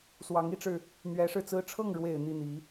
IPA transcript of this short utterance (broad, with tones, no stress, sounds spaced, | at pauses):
s w ɑ˧˥ ŋ i˧˥ ʈ͡ʂ ɻ̩˧ | n̪ ɥ ɛ˧˥ ʂ ɻ̩˥˩ t͡s ɹ̩˥ ʈ͡ʂʰ ɤ˥˩ ŋ ɻ w e˨˩ ɪ̯ n̪ i˥˩ n̪ i˧˥